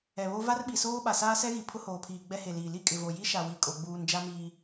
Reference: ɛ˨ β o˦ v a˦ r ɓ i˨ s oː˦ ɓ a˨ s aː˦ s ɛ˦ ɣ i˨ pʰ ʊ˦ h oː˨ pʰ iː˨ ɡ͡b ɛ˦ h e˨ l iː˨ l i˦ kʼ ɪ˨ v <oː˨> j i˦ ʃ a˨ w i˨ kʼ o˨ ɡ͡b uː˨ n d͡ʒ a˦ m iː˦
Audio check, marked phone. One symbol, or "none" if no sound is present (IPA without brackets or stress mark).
o˨